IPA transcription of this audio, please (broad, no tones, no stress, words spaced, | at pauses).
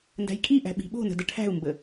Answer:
ndæ̤jkʼiʔæ̤ ɓi̤ɓo̤nə̤ dəʈʰæ̤u̯mbə